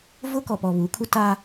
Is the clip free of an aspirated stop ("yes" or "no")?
no